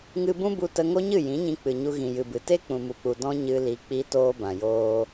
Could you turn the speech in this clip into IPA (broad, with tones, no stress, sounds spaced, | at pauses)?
ŋ ɨ˧ b ũ˦ b u˧ t ə˧ ŋ o˦ ɲ ɨ˦˨ j ĩ˨˦ ɲ ĩ˧ k͡p ɨ˨ ɲ u˧ ɣ ĩ˨ j ɨ˨ b ɨ˨ t e˦ k͡p ũ˨ m u˨ k͡p u˨ d ɔ̃˦ ɲ ɨ˧ l i˧ k͡p i˦ t oː˧ b ã˨ j oː˧